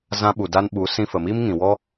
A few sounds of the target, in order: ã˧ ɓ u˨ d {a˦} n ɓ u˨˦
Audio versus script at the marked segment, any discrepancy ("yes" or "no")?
yes